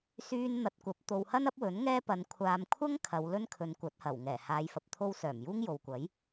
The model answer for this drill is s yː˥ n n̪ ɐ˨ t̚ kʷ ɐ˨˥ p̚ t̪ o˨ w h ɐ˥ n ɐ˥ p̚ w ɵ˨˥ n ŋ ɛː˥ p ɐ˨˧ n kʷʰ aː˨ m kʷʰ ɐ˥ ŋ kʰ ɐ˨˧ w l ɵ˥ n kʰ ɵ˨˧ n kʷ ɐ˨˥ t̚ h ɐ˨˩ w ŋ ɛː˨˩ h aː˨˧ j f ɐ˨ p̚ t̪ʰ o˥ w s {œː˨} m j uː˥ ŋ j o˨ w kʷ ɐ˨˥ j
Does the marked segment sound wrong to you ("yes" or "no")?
yes